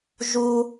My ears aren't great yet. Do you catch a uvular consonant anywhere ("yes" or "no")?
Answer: no